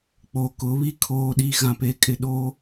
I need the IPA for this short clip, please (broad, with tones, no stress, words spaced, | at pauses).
k͡po˨kʊ˨˦βi˦ kʰoː˨ɗi˨ ɣã˨pe˨kʼɪ˨ ɗo˦